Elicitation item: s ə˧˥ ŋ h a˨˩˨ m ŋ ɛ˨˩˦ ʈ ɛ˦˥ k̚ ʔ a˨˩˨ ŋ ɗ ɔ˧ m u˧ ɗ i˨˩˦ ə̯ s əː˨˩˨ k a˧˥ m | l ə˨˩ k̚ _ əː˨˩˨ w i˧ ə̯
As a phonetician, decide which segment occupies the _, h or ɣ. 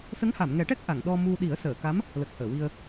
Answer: h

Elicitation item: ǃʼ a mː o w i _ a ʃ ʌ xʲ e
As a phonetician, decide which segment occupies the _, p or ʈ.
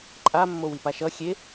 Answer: p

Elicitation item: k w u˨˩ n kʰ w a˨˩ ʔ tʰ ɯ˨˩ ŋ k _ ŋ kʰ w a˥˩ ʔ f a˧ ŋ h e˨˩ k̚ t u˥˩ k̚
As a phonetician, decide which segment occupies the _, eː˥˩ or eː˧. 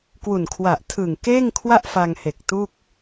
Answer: eː˥˩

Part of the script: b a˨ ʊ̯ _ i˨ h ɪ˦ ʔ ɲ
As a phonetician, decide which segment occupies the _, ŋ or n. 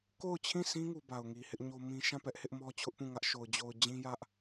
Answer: ŋ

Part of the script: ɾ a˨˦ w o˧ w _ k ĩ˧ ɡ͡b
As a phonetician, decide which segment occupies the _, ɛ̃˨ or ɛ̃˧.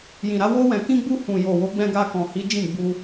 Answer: ɛ̃˨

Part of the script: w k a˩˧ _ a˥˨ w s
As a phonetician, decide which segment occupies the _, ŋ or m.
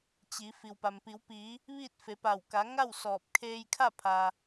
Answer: ŋ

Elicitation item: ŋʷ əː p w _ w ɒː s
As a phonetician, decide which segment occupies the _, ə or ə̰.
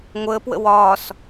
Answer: ə̰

